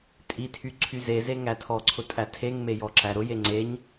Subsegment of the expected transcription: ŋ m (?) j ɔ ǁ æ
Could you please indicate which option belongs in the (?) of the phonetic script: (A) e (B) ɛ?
A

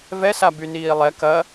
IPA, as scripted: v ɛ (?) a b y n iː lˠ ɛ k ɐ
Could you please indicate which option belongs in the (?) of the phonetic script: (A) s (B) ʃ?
A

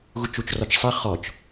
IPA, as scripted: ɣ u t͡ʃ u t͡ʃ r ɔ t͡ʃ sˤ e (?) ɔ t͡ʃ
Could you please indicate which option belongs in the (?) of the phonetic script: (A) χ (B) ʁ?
A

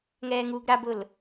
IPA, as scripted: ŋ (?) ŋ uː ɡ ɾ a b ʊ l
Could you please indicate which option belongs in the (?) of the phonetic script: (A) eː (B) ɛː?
B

